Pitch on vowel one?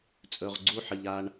low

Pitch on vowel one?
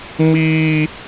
high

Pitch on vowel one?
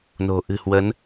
low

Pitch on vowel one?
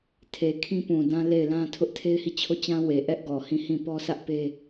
low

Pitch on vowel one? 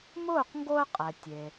falling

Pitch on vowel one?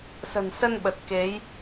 low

